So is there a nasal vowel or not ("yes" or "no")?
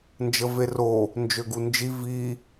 no